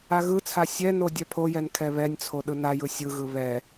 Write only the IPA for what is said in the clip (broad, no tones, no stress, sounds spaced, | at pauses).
a ɣ ɯ t͡sʰ a sʲ ɛ n o dʲ ɛ pʰ o j ɛ n kʰ ɛ β ɛ nʲ t͡sʰ o ɗ ɯ n a j ɯ sʲ ɯ ɣ ɯ β ɛ